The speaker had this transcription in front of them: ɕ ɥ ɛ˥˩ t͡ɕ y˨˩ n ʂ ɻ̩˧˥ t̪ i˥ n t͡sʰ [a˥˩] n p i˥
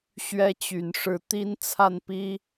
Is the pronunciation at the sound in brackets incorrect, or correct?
correct